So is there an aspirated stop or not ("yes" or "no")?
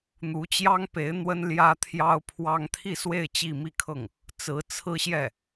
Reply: yes